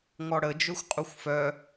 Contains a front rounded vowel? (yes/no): yes